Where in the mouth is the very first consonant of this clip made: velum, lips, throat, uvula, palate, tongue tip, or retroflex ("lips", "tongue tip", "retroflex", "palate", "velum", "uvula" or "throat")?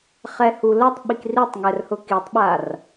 uvula